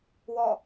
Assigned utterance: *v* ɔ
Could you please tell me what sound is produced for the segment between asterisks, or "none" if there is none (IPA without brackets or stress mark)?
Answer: w